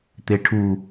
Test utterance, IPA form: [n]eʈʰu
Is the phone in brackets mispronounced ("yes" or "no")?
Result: yes